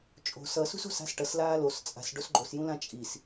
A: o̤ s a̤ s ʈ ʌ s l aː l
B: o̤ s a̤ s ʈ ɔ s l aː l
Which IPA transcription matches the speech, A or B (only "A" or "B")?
A